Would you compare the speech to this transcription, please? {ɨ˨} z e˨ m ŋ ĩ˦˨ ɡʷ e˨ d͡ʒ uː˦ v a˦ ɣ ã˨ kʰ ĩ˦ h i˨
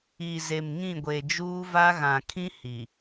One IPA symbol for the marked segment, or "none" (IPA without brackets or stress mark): i˨